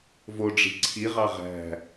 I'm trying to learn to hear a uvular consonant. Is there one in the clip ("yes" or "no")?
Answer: yes